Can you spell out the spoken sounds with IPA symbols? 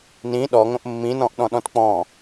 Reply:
nĩ ɗɔŋõʔ mːĩnɔ̃ʔɗɔ̃ɗɔ̃t k͡pɔ̃

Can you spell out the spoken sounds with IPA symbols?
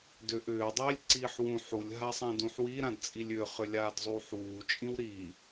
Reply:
dʏ ʔʏː dˤiːlʲǀiːħwũ ħulʲ ɦasˤãdũħwi ɾãdt͡sʼilʲʏːχ ʏlʲaːdzˤuːħwuː t͡ʃʼĩwɾiː

